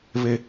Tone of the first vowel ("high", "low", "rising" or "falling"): high